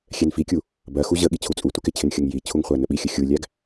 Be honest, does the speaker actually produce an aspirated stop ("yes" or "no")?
yes